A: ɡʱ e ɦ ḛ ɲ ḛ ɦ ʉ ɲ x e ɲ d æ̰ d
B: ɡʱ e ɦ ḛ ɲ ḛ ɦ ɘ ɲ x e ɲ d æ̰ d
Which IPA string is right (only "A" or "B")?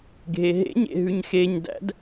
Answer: A